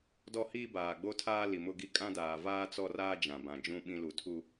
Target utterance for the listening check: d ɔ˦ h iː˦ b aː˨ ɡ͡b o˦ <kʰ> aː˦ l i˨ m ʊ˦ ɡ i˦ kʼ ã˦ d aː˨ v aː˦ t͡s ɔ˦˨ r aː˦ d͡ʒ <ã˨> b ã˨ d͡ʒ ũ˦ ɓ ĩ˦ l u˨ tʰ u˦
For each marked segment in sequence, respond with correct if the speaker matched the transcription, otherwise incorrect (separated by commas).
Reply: incorrect, correct